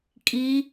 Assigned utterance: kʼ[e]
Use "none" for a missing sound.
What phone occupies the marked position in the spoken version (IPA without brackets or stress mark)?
i